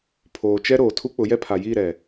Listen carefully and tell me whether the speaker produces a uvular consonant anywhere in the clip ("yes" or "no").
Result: no